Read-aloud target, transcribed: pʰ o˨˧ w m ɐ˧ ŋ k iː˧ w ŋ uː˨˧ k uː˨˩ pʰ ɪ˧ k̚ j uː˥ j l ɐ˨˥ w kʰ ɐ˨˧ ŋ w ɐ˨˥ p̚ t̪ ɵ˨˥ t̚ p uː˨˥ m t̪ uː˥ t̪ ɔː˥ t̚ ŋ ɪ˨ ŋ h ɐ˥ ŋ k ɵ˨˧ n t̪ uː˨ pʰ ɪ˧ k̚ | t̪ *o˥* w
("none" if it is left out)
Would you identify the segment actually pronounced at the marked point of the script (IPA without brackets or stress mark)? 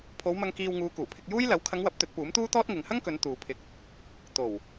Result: o˨˩